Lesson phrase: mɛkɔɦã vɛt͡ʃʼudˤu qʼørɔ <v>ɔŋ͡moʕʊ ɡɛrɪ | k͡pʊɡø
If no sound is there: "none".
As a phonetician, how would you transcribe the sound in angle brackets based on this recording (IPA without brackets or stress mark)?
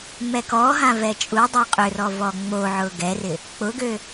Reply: v